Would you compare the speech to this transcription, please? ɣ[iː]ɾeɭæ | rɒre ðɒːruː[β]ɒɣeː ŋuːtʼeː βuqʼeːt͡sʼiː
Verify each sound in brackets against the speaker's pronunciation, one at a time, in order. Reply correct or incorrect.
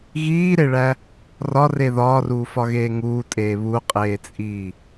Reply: correct, incorrect

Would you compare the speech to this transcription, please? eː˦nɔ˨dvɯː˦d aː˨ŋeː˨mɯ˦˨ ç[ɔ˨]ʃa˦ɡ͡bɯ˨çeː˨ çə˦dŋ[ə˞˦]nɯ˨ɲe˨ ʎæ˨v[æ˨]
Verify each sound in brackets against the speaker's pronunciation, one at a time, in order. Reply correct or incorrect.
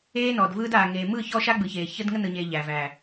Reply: incorrect, incorrect, correct

